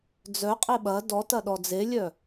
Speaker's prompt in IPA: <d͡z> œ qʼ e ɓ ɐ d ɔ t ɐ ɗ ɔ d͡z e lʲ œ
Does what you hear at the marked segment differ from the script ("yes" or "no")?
no